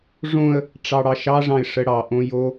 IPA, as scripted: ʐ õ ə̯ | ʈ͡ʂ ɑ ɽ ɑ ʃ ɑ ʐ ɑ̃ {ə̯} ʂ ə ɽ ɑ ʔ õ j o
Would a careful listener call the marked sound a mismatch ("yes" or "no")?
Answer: yes